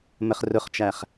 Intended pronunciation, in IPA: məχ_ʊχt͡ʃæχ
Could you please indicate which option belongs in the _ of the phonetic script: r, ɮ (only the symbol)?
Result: r